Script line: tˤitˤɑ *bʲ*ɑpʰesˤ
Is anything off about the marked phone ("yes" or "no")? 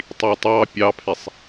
yes